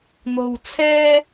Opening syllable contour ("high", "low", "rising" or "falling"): low